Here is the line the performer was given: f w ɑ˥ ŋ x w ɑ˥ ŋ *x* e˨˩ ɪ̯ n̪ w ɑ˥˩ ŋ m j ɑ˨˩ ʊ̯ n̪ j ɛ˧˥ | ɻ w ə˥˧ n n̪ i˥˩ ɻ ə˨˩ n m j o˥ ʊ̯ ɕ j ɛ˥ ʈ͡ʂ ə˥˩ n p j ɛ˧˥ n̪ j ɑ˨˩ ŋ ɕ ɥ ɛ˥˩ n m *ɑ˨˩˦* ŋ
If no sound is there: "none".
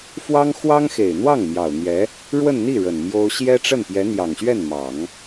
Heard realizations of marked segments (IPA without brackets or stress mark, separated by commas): x, ɑ˨˩˦